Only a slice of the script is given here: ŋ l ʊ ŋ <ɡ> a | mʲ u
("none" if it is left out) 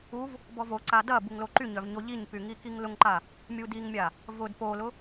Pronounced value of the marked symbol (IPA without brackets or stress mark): ǃ